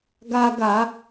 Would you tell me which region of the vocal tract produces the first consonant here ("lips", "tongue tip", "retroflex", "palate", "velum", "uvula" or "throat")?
velum